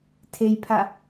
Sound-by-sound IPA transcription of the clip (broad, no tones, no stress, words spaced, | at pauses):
tʰejpʰa